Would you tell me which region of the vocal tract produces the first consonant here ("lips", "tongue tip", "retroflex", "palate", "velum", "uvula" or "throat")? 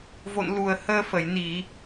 lips